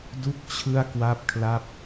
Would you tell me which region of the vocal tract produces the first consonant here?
tongue tip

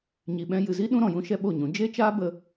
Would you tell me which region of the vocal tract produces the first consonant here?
palate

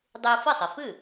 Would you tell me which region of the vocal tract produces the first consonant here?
tongue tip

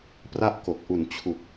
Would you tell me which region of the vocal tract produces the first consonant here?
lips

